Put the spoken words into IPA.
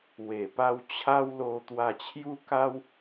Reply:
w e˨˩ p a˧ w t͡ɕʰ a˦ w l o˧ t̪ w a˧ t͡ɕʰ j u˦ k a˦ w

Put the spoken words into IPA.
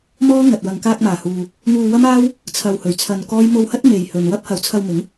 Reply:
m ɔː˥ ŋ ɐ˨ t̚ w ɐ˨ ŋ k aː˧ k̚ m aː˨˩ h uː˨ | ŋ uː˧ w ɐ˥ m aː˥ w | t͡sʰ ɐ˧ w h ɵ˨ ɥ t͡sʰ ɐ˧ n k ɔː˥ j m o˧ w h ɐ˥ t̚ m e˨ j h ɵ˨ n w ɐ˥ p̚ h ɐ˨˧ w t͡sʰ ɐ˧ w m ɪ˨˥ ŋ

